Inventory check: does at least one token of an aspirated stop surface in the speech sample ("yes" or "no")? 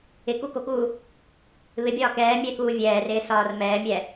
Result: no